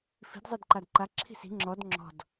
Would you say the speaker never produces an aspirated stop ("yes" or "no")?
no